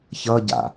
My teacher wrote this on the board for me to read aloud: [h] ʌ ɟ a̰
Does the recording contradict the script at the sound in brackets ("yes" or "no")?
yes